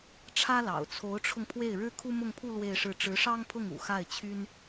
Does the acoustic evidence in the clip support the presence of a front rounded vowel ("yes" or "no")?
yes